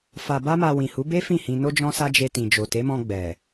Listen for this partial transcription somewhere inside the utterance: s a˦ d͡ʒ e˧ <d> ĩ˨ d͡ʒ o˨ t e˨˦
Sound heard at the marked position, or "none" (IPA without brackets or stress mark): t